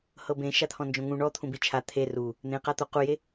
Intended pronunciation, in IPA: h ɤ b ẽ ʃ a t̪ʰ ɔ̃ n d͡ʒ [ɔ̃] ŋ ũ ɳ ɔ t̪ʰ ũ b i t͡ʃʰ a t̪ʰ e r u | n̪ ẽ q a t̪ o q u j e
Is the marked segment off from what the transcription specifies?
yes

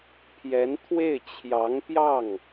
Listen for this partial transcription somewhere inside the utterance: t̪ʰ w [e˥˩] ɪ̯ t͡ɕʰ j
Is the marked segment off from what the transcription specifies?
no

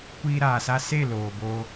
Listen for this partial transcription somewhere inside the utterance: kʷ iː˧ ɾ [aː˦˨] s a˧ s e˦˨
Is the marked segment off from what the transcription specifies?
yes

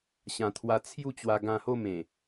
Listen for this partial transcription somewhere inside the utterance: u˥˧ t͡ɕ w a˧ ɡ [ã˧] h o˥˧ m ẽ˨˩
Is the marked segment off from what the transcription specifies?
no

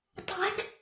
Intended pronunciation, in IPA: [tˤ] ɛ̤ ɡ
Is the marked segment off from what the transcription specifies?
no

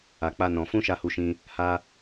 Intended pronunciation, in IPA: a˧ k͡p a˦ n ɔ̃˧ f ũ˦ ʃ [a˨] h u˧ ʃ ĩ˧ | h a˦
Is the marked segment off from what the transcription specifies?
yes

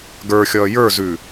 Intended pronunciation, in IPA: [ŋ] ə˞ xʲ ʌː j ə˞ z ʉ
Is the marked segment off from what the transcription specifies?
yes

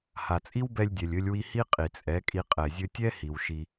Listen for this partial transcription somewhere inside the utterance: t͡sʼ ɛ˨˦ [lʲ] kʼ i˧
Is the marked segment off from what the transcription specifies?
yes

